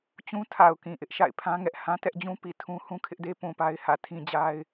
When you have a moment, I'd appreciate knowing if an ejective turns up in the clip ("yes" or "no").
no